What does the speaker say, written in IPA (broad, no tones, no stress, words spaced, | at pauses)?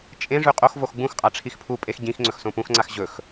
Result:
t͡ʃʼẽ ʐʉqʼoxvox ɡ͡bũxqʼa ʈ͡ʂʰixpʰupʼex ɟĩxŋ͡ǀɵx sõpũxŋ͡ǀax ʑɵx